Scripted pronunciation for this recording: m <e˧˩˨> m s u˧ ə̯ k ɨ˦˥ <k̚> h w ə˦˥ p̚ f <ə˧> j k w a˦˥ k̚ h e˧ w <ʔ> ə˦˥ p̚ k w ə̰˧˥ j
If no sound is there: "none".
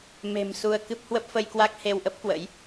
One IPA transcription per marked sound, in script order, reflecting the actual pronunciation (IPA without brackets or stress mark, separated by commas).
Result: e̤˨˩, p̚, ə˧, ʔ